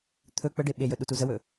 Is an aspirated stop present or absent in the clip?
present